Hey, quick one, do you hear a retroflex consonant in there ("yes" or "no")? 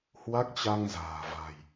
no